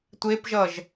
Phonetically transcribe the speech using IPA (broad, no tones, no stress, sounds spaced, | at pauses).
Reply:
tʷ e p ʒ ʌ ʒ